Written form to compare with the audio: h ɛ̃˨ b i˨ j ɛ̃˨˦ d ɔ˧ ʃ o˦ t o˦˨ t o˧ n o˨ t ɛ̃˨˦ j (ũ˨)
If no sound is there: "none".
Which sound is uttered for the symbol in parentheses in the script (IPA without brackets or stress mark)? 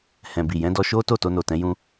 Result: ũ˧